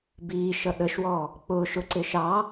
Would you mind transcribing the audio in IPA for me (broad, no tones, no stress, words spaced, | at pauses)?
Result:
biː ʃʌɗəʃwɔː | k͡pʊː ʃʊǀɪː ʃɑː